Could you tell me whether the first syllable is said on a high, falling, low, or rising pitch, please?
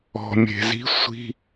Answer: low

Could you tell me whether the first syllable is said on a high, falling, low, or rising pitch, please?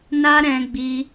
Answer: high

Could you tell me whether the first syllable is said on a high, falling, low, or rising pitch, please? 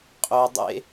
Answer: low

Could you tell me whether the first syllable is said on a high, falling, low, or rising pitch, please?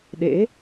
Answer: rising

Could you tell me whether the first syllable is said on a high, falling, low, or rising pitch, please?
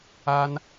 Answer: high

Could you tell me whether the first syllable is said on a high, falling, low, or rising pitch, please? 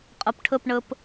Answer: low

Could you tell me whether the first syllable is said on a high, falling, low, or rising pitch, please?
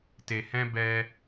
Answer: low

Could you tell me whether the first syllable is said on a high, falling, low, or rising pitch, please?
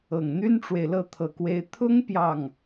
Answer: low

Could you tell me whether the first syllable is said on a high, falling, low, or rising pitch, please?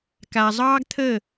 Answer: low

